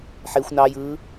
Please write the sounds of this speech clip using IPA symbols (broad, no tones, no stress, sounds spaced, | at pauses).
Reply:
ħ e xʷ n ɑ j ɯː